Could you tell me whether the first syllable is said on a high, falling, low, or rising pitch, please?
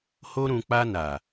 high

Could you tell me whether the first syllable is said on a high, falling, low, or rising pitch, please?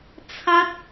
high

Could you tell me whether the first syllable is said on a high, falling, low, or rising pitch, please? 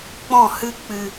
falling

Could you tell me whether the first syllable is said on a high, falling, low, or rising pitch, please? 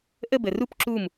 falling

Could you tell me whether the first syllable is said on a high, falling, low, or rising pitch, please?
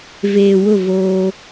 low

